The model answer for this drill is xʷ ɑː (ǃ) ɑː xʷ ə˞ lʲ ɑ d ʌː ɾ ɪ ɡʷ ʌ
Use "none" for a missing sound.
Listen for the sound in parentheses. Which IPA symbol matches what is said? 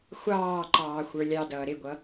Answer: ǃ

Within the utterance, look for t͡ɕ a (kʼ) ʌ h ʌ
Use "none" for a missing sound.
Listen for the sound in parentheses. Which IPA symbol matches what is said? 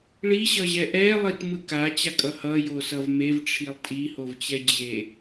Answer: kʼ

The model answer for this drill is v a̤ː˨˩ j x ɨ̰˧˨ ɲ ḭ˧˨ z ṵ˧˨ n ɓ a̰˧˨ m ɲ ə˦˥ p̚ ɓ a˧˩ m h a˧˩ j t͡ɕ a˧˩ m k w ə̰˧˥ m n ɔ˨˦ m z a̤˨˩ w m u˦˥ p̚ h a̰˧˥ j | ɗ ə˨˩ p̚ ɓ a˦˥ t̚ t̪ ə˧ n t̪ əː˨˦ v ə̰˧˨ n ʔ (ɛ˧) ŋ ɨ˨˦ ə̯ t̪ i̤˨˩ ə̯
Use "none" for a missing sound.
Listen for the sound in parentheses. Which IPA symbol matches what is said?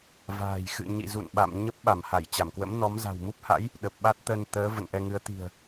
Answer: ɛ˧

